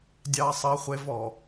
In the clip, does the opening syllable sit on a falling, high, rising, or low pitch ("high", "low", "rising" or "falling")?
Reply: high